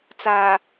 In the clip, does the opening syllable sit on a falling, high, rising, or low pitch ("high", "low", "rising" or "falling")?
low